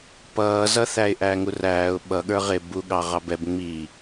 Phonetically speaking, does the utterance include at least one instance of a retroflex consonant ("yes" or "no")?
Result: no